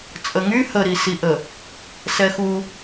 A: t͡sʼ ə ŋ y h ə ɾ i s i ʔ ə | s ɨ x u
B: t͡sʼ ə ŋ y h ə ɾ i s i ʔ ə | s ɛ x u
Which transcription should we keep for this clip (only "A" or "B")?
B